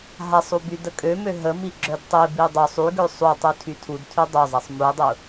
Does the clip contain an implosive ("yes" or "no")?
no